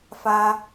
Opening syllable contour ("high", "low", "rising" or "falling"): high